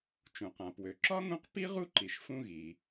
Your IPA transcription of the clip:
t͡ʃ ũ˩ q ã˩ p w ø˩ ǁ ɒ˥ ŋ ũ˦ q p i˥ ʁ u˥ ǃ i˩ ʃ f ũ˦ ɣ i˩

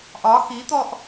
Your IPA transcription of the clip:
ʔ ɒ x i t̪ ɔ ʔ

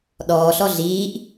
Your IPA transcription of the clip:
ɗ ɔː ɬ ɔ ɮ iː ʔ

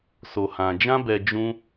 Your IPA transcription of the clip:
s o˨ h ã˨ d͡ʒ ã˧ b ɛ˨ d͡ʒ ũ˧

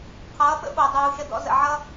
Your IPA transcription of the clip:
qʰ ʌː˨˦ ɓ ə̰˦ ɓ o˨ dˤ uː˨ ʃ ə˧ d ɔ̰˧ z ə̰˨ ʕ ʌ˦

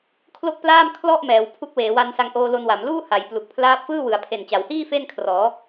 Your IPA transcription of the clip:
kʰ l o˥˩ k̚ p l aː˥˩ m kʰ l ɔ˥˩ ʔ m ɛː˩˦ w pʰ u˦˥ k̚ w eː˩˦ w a˦˥ n s a˧ ŋ ʔ oː˧ l o˧ n w a˩˦ m l uː˥˩ h a˩˦ j p l u˨˩ k̚ pʰ l aː˦˥ p̚ f ɯː˥˩ w ɯ˩˦ a̯ pʰ e˨˩ n t͡ɕ a˩˦ w h iː˥˩ f e˥˩ n kʰ r ɔː˩˦

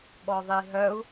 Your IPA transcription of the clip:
ɓ ɔ ðˤ i ɦ œ u̯

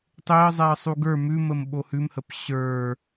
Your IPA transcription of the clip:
tˤ e ə̯ zˤ ɛ ə̯ sˤ u ɡ ə˞ m ʉ m ə m ɓ o h ʉ m h ə p ɕ ə˞

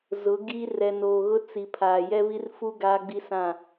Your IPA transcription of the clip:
z ʊ˨˦ ɡ i˦ r ɛ˨ n oː˨ ɣ ʊ˦ t͡s i˨ pʰ aː˨ j ɛ˦ β i˦ r f u˦ ɡ aː˦ ɡ͡b i˦ s ã˦˨

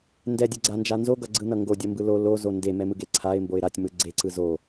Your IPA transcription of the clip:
n d ɛ dʲ ɯ ɡ͡ǀ a n d͡ʒ a n z o ɡ ʌ ɡ͡ǀ ɯ n ʌ ŋ ɡ o dʲ ʌ m b ɯ l o l o z o n d e m ɛ m ɯ ɡ e ǀʰ a ɪ̯ m b o ɪ̯ ɾ a tʲ m ɯ ɡ͡ǀ e ǀ ɯ z o

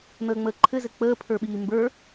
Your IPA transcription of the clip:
n̪ əː ŋ͡m əː ǃʰ ɘ z ɘ k͡p əː pʰ ə˞ ɓ iː m b ə˞

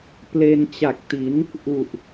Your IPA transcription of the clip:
p l e˧ n t͡ɕ a˨˩ k̚ t i˩˦ n | ʔ u˨˩ ʔ

